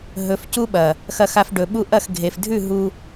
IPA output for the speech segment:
ɦ ɵ˨ f c u˧ ɓ ɐ˨ | x ɐ˧ x a˧ f ɖ ɵ˨ ɓ u˧ ʔ ɐ˦˨ x ɡʱ e˨ f dʱ ʉ˦˨ ɦ u˧

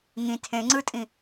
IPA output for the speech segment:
ŋ ĩ tʰ ẽ ŋ͡ǀ ɯ tʼ ĩ

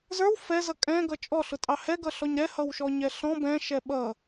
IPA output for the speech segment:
z ə˞ w f ɛ z ʌ kʼ ɛ̃ ɡ ʌ t͡ʃʼ ɔ ɬ ʊ tʼ ɑ h ɛ ɡ ʌ ɬ ɔ ɲ ɾ ɛ h ʌ w ʃ ɔ ɲ ɛ ɬ ɔ̃ b ɛ̃ ʃ ɛ ɓ ʌ

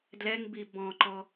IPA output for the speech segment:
d l ɛ ŋ b i b ɔ̃ ǃ ɔ

